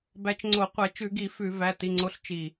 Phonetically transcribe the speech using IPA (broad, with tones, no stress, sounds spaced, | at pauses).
b æ˨˦ t͡ʃ ŋ͡ǀ o˧˩˧ qʷ ɛ˧˩˧ t͡ʃ ʉ˧˩˧ ɡ i˧˩˧ f ʉ˧˩˧ v æ˩˧˩ t i˩˧˩ ŋ͡ǀ o˨˦ ɬ t͡ʃ i˧˩